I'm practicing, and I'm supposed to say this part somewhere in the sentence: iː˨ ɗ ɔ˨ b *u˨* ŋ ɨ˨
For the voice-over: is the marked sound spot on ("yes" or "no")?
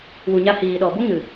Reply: no